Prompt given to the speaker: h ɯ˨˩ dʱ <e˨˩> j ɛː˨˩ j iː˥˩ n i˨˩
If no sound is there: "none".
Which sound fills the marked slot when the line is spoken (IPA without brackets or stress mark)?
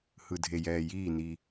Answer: e˨˩